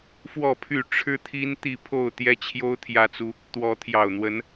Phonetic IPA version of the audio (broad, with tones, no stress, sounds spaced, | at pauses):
f w ɔ˥˨ pʰ y˥˨ ʈ͡ʂʰ ɻ̩˦ t̪ʰ i˦ n t̪ i˥˨ pʰ o˥˨ ʊ̯ t̪ j ɛ˦ t͡ɕʰ j o˦ ʊ̯ t̪ʰ j ä˦ t͡s u˦ | t̪ w ɔ˨˦ t̪ʰ j ɑ˨˩ ʊ̯ n̪ w ə˨˦ n